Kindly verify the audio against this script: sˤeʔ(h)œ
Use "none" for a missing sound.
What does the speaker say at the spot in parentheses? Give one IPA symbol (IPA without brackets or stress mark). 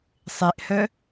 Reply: h